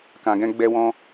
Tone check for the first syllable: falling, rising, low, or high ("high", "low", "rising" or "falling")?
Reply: low